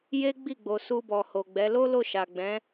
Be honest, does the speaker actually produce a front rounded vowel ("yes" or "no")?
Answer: no